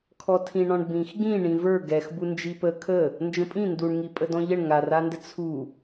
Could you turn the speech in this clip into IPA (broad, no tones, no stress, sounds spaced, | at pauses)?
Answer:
kʰ ɔ tʰ ĩ ɳ ɔ̃ ɳ b ĩ x ɡ ĩ ɳ ĩ v ə˞ ɡ ɛ x b u n d͡ʒ i p ə kʰ ə | n d͡ʒ ə̃ pʼ ĩ n d u ɳ ŋ i pʼ ə d ɔ̃ ʎ ə ɳ ŋ a r a n d ə t͡sʰ u